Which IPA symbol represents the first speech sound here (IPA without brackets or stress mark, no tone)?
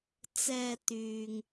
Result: t͡s